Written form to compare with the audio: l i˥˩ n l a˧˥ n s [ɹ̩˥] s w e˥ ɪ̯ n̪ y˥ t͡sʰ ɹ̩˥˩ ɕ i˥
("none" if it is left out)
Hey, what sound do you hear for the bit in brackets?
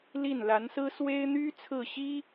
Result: ɹ̩˥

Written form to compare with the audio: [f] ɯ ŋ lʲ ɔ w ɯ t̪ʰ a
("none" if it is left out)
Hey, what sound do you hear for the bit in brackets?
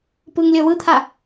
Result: p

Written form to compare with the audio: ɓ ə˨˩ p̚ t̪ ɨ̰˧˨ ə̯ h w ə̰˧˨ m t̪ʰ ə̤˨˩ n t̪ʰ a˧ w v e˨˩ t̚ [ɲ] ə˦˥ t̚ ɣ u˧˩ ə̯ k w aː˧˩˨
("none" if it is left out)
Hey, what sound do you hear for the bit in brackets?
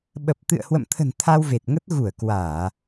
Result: ŋ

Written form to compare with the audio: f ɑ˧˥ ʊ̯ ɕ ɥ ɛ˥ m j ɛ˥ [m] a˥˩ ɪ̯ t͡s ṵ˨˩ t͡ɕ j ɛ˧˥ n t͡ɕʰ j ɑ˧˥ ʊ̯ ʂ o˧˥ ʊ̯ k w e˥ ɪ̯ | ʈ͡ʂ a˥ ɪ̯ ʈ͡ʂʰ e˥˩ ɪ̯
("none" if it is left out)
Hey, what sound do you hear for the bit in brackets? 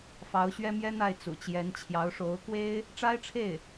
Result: n̪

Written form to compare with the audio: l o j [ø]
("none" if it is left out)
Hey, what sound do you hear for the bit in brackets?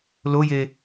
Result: e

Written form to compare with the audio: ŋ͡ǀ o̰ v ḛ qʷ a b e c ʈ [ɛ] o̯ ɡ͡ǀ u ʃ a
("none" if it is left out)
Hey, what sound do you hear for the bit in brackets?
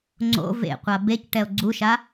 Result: ɛ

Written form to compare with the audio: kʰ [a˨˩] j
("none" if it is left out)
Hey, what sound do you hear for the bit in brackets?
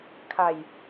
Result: a˨˩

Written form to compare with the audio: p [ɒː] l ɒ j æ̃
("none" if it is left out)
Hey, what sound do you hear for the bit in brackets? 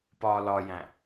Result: ɒː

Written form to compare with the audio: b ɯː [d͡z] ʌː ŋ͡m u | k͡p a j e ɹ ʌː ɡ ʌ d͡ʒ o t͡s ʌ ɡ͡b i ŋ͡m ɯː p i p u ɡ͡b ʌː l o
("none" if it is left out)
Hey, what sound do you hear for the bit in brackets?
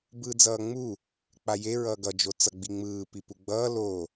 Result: d͡z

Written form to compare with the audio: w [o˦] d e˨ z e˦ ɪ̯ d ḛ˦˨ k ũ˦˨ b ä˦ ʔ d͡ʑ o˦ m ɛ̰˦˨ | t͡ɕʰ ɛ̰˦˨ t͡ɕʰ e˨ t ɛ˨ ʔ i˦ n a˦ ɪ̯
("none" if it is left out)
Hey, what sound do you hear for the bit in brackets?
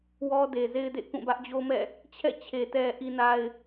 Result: ɔ˦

